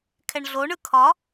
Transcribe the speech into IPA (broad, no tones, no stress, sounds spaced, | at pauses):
kʰ ɛ ɳ ɮ o ɳ ɯ kʰ ɒ